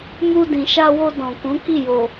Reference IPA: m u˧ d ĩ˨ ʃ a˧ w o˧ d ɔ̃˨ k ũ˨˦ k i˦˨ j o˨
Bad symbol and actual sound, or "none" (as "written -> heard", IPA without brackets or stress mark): none